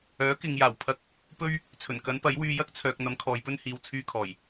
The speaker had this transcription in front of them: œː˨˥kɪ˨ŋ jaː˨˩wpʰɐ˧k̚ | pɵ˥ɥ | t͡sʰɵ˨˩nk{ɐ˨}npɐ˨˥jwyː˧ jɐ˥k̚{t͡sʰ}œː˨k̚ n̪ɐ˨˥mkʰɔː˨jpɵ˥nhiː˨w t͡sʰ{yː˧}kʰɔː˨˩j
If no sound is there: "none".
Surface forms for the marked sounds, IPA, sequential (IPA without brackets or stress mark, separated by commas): ɐ˨˥, t͡sʰ, yː˧